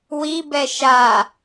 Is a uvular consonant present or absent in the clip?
absent